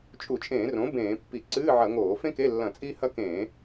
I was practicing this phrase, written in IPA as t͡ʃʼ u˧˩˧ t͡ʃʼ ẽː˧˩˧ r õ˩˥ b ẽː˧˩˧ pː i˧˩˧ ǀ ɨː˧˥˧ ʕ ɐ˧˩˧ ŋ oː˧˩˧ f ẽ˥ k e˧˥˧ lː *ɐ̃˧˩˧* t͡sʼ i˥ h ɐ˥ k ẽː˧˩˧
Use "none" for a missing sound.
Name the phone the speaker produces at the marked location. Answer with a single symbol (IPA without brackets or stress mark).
ɐ̃˧˩˧